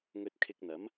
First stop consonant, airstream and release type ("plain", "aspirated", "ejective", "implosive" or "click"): plain